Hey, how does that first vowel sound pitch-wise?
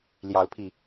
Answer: rising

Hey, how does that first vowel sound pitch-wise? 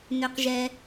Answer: low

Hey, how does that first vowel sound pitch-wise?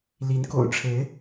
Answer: rising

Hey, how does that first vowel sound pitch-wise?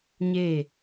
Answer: falling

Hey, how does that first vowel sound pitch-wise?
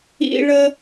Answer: high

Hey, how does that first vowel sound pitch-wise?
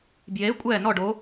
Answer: rising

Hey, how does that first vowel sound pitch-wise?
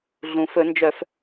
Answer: low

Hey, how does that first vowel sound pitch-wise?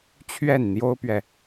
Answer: falling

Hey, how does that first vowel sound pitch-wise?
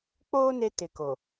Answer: high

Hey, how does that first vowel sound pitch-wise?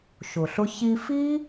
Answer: low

